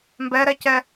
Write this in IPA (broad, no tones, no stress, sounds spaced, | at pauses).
m b ɛ ɾ ɛ c ɛ